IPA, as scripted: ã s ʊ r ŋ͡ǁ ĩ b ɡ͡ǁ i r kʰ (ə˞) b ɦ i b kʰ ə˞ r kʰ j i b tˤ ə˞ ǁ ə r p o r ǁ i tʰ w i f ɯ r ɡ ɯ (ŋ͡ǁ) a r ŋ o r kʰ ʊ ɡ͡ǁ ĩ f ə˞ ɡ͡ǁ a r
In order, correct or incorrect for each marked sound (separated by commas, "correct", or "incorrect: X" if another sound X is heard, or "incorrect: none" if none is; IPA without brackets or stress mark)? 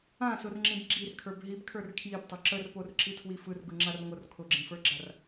correct, correct